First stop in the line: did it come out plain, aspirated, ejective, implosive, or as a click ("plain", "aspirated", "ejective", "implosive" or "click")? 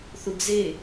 plain